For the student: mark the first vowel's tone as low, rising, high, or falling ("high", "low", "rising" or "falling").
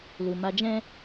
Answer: low